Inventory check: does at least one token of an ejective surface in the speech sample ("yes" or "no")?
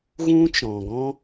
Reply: no